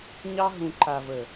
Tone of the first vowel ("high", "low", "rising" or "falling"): high